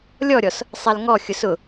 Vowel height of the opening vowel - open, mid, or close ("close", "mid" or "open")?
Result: mid